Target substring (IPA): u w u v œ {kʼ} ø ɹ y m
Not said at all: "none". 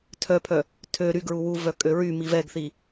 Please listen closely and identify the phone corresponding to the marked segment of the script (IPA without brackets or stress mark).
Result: kʼ